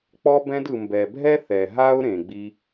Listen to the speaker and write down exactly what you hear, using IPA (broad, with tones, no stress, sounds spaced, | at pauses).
k͡p ɔ˧ b ɛ̃˧ d ɯ˨ m b ɛ˨ bʱ ɛ˦ θ ɛ˨ ɦ a˦ ʊ̯ ɾ ẽ˨ ɡ͡b i˧